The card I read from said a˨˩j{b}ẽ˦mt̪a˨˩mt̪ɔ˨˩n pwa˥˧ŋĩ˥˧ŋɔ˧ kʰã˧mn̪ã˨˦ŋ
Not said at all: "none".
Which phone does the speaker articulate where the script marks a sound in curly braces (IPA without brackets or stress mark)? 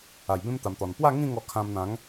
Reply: b